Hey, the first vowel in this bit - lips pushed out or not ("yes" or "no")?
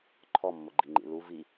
yes